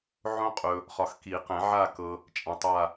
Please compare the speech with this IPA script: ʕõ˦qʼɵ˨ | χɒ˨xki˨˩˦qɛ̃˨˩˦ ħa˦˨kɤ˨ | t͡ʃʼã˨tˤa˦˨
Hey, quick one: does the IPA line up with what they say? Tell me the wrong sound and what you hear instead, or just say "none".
ħ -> ʕ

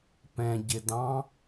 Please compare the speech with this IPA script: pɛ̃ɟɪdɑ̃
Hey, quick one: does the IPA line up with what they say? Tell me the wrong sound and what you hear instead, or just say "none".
none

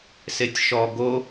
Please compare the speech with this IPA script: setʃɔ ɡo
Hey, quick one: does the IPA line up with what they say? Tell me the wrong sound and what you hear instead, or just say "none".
t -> tʲ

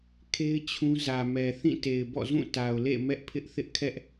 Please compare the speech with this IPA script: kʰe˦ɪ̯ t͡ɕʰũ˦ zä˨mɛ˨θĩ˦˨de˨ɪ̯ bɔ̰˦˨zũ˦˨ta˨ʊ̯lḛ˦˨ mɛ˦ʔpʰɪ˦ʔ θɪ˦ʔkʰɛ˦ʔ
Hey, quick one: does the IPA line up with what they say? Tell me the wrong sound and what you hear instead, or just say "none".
d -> t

